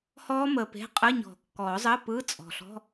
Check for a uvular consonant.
present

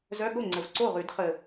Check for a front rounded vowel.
present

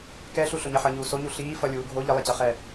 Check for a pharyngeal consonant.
present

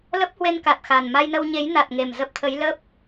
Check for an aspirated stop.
present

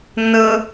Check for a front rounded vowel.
absent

